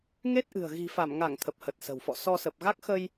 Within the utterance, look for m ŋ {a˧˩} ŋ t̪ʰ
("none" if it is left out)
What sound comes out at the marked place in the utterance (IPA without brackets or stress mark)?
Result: a˧˩